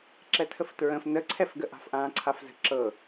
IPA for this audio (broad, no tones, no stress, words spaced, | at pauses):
ǁɛtʰəftɹə̃f nəǀʰɛfɡə ʔa̤fʔãːǀʰafzə̤ ǁɤ